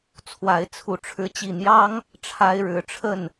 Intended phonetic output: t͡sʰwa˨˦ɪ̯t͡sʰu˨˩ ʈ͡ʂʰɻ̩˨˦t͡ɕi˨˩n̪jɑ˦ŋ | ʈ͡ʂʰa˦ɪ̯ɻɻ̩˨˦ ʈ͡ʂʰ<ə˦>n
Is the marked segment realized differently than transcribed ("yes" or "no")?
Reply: yes